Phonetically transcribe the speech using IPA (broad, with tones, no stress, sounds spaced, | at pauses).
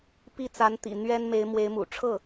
p i˥˩ t͡s a˧˥ n t̪ ḭ˨˩ n̪ ɥ ɛ˥ n m e˧˥ ɪ̯ m w e˧˥ ɪ̯ m ṵ˨˩ ʈ͡ʂʰ ɤ˥˩